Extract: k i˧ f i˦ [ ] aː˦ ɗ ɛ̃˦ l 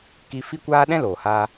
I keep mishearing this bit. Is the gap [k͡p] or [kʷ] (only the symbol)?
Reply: kʷ